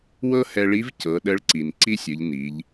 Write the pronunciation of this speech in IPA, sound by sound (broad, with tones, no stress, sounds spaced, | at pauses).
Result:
w ɤ˥ h ɛ˧ ɭ i˧˥ v c ɤ˩˧ ɗ ə˧˥ ɭ ǀ i˩ n ǀ i˥ sʲ ɯ˩˧ ʎ n i˩˧ ʎ